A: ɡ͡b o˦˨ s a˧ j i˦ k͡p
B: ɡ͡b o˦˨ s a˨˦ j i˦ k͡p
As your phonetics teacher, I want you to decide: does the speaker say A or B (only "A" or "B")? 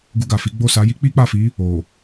B